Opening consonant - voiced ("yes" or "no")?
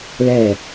yes